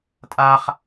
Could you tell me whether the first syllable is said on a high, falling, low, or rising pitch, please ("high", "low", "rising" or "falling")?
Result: high